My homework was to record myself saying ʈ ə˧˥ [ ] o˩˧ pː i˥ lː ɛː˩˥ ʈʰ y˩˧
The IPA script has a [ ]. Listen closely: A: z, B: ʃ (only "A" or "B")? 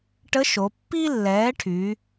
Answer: B